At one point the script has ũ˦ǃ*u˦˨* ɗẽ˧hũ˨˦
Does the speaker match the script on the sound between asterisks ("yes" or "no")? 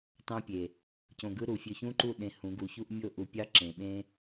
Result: yes